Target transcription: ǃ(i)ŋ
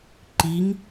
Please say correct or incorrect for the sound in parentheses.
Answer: correct